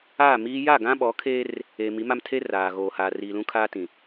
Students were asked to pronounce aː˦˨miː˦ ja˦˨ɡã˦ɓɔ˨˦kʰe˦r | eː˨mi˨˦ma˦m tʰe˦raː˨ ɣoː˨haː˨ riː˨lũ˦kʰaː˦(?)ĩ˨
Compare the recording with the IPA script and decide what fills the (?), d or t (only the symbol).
t